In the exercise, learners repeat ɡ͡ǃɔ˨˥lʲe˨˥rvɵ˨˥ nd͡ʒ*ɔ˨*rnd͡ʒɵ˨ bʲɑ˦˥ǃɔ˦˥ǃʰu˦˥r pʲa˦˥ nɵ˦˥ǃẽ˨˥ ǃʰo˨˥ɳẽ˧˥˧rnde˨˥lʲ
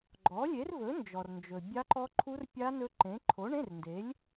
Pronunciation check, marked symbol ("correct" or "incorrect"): correct